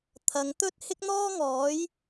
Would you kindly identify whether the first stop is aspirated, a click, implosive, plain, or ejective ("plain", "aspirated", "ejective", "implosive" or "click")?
aspirated